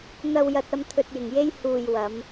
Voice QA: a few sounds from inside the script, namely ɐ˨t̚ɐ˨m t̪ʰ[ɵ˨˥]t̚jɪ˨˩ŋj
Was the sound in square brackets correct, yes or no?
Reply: no